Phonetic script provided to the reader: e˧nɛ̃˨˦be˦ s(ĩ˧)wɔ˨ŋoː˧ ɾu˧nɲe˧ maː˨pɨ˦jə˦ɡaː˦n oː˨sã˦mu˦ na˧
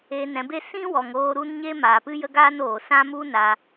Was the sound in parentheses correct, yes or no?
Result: no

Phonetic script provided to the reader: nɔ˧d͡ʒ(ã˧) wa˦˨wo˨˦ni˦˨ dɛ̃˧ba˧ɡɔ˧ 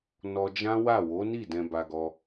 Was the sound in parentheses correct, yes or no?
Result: no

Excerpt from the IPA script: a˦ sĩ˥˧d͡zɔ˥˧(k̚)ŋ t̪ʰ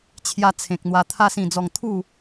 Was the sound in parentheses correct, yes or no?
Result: no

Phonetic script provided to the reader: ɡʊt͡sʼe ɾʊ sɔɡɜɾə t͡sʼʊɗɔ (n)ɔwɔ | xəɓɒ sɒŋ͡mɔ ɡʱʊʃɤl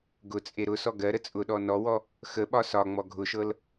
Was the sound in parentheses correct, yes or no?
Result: yes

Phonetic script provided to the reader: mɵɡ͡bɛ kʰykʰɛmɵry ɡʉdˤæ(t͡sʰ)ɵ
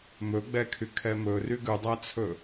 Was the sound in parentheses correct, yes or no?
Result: yes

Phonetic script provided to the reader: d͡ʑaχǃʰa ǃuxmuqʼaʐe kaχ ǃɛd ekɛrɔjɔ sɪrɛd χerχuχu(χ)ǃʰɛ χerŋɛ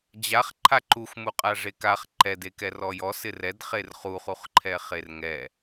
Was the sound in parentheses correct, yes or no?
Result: yes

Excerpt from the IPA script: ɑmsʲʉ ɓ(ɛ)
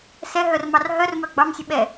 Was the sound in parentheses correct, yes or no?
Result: yes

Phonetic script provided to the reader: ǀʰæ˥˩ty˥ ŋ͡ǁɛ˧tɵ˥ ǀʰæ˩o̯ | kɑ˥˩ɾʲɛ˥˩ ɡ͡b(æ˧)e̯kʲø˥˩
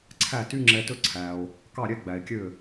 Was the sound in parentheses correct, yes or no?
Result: no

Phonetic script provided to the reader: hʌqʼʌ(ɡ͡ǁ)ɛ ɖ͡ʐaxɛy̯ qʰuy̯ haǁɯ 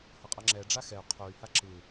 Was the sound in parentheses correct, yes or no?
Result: no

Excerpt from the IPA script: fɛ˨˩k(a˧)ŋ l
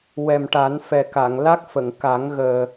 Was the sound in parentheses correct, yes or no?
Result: no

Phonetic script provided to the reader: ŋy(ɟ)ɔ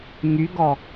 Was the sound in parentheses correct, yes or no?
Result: no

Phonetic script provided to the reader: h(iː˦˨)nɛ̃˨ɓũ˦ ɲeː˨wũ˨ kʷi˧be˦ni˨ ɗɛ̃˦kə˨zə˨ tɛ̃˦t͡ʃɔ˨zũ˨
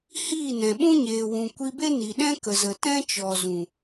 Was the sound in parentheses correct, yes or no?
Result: yes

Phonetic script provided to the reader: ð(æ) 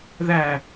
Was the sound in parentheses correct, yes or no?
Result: yes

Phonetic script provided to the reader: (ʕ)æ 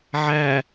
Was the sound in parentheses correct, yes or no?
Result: yes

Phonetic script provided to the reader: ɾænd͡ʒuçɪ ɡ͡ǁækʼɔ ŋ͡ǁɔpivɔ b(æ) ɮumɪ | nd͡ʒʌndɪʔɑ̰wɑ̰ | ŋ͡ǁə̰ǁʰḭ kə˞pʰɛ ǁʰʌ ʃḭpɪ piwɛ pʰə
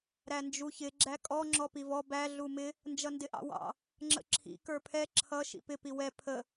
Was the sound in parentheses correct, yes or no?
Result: yes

